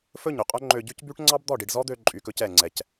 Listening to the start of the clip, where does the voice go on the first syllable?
falling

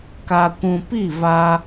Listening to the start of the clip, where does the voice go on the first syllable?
low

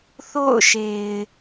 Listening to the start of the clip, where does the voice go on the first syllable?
falling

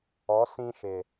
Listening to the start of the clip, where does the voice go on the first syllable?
rising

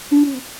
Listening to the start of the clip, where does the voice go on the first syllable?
low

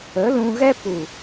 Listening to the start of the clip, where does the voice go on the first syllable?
rising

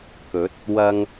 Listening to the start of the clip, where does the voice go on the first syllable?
rising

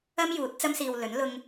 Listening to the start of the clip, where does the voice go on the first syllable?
high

